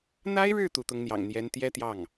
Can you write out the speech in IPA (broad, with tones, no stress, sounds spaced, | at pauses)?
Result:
n̪ a˥ ɪ̯ ɻ ɻ̩˥˩ t̪ u˧˥ t̪ ʊ˧˥ ŋ n̪ j ɑ̰˨˩ ŋ n̪ j ɛ˧˥ n t̪ j ɛ˥ t̪ j ɑ˥˩ ŋ